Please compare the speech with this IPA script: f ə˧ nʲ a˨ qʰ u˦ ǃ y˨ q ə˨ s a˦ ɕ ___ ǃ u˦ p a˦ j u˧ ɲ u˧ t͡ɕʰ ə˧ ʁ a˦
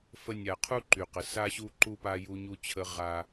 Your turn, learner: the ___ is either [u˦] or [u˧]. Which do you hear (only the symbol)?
u˦